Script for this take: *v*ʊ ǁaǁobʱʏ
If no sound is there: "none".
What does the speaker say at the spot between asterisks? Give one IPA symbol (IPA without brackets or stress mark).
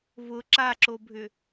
v